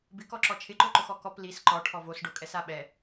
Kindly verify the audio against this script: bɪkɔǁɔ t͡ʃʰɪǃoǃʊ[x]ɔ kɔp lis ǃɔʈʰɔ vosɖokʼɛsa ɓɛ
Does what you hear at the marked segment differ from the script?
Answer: no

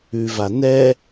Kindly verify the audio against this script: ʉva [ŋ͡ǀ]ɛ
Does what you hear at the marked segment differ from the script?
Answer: yes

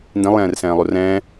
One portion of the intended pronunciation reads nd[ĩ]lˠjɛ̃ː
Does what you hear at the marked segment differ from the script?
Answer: no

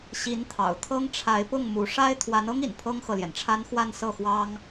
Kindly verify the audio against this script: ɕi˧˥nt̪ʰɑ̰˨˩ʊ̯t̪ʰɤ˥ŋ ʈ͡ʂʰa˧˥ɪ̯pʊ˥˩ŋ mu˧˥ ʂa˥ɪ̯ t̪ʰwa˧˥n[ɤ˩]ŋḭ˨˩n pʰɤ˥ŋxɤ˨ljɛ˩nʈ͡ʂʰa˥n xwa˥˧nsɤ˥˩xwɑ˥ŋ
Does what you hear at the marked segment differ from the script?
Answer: yes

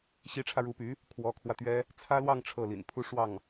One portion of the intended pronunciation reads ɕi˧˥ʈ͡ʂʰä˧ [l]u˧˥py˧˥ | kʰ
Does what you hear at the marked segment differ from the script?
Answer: yes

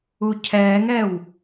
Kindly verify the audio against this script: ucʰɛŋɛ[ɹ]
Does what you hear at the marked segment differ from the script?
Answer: yes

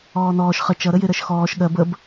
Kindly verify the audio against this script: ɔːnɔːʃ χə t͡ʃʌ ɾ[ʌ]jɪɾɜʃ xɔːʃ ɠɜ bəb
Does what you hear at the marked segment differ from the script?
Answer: yes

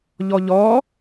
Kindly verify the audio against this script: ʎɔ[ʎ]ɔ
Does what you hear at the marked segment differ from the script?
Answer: no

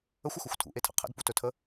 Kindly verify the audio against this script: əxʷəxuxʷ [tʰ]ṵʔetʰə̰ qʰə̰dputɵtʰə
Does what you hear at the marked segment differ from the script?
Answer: no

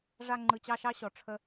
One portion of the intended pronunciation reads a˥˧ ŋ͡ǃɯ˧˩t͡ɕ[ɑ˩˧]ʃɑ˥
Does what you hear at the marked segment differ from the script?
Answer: yes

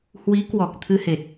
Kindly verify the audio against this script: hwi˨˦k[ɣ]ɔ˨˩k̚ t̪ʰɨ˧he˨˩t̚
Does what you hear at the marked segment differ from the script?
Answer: yes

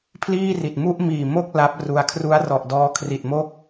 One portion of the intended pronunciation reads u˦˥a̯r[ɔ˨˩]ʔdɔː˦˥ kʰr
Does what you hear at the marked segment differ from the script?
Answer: no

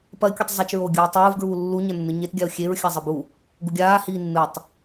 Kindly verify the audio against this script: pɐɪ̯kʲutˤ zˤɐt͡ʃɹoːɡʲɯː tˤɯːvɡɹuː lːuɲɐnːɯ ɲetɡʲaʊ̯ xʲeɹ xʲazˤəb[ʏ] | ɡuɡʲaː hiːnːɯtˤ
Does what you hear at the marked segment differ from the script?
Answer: yes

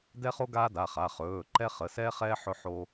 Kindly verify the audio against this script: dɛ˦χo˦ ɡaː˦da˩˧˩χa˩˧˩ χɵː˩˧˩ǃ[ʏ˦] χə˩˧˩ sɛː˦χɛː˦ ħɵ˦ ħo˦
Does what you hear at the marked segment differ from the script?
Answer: yes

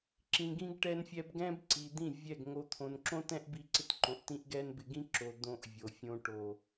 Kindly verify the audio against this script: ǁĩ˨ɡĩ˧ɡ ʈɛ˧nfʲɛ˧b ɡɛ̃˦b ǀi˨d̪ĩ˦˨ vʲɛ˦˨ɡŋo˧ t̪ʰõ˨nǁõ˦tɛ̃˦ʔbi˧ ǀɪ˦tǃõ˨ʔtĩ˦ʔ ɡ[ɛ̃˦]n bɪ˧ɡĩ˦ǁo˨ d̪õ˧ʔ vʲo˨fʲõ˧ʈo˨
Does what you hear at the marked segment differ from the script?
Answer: yes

